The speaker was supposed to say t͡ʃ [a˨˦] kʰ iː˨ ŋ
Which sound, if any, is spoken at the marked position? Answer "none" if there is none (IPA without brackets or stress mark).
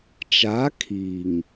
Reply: a˨˦